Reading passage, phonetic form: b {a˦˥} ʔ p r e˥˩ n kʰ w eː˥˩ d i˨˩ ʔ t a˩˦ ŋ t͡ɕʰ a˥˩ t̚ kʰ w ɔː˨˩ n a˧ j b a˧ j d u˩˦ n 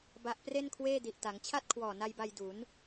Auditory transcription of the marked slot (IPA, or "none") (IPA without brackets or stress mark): a˦˥